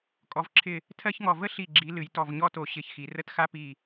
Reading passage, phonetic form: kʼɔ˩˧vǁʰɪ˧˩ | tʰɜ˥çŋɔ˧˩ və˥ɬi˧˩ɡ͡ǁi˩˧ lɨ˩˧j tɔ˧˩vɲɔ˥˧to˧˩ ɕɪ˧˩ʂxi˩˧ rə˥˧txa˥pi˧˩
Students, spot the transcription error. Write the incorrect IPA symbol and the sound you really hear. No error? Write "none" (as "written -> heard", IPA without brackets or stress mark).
ʂ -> ç